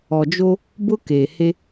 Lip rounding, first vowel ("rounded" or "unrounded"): rounded